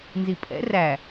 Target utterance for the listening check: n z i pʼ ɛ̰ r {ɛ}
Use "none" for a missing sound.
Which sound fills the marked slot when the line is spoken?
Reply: æ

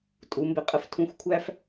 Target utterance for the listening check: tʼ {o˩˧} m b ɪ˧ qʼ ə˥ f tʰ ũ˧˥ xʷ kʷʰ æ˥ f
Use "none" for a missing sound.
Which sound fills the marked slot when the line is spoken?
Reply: u˩˧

